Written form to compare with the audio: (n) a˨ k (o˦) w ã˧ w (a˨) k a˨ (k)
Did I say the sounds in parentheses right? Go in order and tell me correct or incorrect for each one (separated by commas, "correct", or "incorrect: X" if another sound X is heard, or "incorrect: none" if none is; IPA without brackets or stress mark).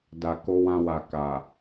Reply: incorrect: d, incorrect: o˧, correct, incorrect: none